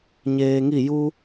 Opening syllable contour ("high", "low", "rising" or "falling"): low